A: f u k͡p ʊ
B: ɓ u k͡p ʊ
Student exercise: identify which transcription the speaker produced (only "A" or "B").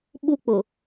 B